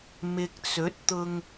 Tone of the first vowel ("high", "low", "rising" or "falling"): low